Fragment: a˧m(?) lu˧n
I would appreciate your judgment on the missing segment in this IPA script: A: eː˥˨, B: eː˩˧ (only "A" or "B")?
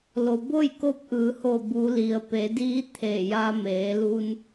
B